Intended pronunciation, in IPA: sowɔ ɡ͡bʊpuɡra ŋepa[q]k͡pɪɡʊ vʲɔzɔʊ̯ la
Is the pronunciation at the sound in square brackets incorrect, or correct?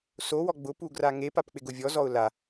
incorrect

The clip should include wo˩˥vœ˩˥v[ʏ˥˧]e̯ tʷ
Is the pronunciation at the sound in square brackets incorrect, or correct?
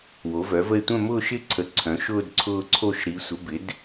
incorrect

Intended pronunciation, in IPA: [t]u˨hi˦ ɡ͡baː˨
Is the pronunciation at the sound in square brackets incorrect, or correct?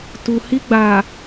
correct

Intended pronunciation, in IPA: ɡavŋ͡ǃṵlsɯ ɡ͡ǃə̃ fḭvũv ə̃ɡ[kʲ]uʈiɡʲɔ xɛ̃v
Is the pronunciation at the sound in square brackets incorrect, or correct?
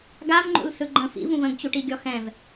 incorrect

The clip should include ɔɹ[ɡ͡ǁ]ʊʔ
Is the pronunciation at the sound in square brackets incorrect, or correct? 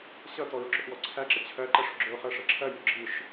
correct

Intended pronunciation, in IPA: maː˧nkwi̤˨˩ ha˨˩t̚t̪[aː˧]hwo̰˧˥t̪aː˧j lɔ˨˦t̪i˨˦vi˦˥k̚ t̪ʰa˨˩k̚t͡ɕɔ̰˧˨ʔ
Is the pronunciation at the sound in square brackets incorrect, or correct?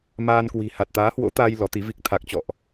incorrect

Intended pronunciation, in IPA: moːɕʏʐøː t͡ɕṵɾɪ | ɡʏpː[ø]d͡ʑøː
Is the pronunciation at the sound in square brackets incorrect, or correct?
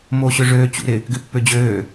correct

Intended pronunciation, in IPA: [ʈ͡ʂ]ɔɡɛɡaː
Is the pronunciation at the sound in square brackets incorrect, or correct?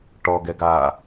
incorrect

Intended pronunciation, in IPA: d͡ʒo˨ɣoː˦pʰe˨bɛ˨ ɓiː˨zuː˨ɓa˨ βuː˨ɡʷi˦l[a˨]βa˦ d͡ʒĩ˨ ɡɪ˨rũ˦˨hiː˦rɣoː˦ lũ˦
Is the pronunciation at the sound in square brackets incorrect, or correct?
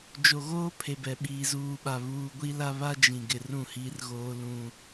incorrect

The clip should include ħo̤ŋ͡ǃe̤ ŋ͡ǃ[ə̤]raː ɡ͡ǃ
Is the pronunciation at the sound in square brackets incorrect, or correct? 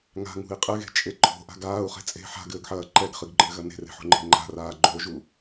incorrect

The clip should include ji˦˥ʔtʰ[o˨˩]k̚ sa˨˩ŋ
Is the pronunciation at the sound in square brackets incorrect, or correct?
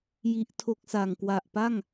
incorrect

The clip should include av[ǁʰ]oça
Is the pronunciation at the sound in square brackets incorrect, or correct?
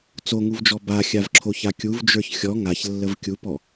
correct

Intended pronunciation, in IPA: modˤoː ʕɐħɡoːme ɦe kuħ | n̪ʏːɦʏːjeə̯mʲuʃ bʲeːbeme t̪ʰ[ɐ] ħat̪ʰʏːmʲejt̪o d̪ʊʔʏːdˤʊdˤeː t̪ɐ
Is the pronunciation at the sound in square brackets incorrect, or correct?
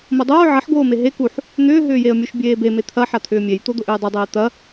correct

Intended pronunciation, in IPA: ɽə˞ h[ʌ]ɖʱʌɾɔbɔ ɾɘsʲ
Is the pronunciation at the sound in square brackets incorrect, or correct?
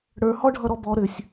incorrect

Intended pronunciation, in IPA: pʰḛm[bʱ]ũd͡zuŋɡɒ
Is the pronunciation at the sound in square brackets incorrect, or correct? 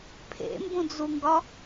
incorrect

